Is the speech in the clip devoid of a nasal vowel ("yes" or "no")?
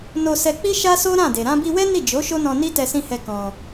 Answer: no